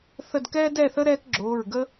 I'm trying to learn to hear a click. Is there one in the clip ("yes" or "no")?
yes